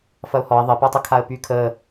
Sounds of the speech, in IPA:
f ɐ ʊ̯ h ɔ ɪ̯ ðˤ ə p a tˤ ə kʰ a ə̯ p y kʰ ə

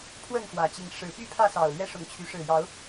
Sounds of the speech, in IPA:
pʰ w ə˥˨ n x w ä˨˩ t͡ɕ i˨˦ ŋ ʂ ɻ̩˨˦ p y˦ pʰ ä˥˨ s ɑ˨˩ ʊ̯ l ɥ ɛ˦ ʂ ʊ˨˦ ŋ t͡ɕʰ y˨˦ ʂ ɻ̩˨˩ j ɑ˨˦ ʊ̯

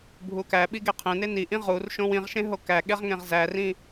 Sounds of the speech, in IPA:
bʱ u k æ ɓ i ɡ e qʰ ẽ n e n i ʔ ĩ ʁ u r ʃ õ w ĩ ʁ ʃ ẽ ɦ o k æ ɠ e ʁ ŋ ẽ ʁ z æ r ĩ

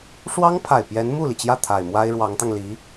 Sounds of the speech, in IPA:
ʂ w ɑ˥ ŋ pʰ a˨˩ ɪ̯ p j ɛ˧˥ n m u˥˩ l i˩ t͡ɕ j ä˥˩ t̪ʰ a˨˩ ɪ̯ m w a˥ ɪ̯ ɻ w ɑ˧˥ ŋ t̪ ɑ˧ ŋ l i˧˥

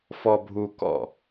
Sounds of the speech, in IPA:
f ɔ bʱ u k ɔ̰

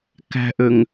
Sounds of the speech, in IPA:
k æ̤ ʔ ø ŋ

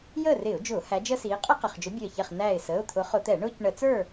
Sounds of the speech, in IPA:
j əː˥˨ r ɪː˧˩˧ ʊ̯ d͡ʒ ʊː˧˩˧ h æ˨˦ d͡ʒ əː˦ s iː˨˦ qʼ ɛ˦ q ə˩˧˩ χ d͡ʒ ʊ˨˦ bʲ əː˧˩ ç ɛ˧˩ χ n æː˧˩ ɪ̯ s əː˩˧˩ ʊ̯ t̪ʰ ʊ˨˦ χ ʊ˧˩˧ t̪ ɛ˧˩˧ ɳ ʊː˦ c ɳ ə˧˩˧ t͡s ə˞˥˨

